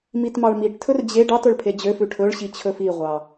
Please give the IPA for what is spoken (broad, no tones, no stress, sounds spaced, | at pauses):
m i t m ɑ ɭ m i ʈ tʰ ɵ r d͡ʑ e ɖ ɑ t ɵ ɭ pʰ e d͡ʑ ø f ʉ ʈʰ ɵ ɭ ɕ i t͡ɕʰ ɵ f i ʁʷ ɑ